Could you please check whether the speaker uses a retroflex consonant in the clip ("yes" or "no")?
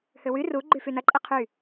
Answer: no